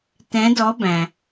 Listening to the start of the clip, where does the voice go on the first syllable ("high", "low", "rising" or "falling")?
rising